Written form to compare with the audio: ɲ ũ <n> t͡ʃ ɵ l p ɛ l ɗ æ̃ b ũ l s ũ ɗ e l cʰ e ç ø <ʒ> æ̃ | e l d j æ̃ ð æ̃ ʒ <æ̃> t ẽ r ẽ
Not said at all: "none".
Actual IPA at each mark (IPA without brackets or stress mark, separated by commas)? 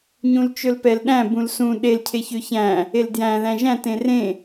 l, ç, æ̃